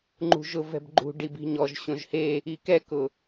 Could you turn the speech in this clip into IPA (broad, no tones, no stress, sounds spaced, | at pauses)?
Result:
ŋ͡ǃ ṳ ʒ ʊ v ɛ̤ b ɡ͡ǃ ṳ ɖ i b i̤ ɲ ɔ ʒ ɕ õ ʒ h e | i k ɛ k ʊ